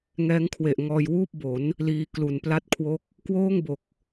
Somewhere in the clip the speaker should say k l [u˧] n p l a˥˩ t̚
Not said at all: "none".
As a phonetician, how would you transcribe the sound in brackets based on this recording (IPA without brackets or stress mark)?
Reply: u˨˩